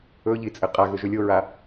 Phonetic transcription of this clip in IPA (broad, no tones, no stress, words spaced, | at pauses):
ɵʎi t͡sʼɘqʼaɣɵ ʒɵlʲoɹa